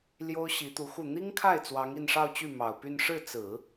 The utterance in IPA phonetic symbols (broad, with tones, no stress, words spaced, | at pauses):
ljo˥ʊ̯ɕi˧˥t̪u˧˥xu˥˩ n̪i˥ŋkʰa˥˩ɪ̯ t͡swɑ˧˥ŋi˥˧nʂɑ˥˧ʊ̯t͡ɕy˥˩ mɑ˨˩ʊ̯py˥˧n ʂɻ̩˥˩ t͡sɹ̩˨˩˦